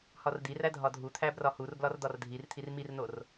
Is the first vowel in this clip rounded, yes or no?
yes